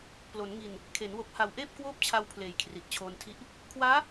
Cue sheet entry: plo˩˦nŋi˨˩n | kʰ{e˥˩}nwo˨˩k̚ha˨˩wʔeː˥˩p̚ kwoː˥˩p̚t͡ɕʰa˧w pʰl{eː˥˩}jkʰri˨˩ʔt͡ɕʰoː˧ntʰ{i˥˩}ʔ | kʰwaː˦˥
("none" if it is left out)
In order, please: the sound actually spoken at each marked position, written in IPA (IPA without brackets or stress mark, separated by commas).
e˩˦, eː˨˩, i˥˩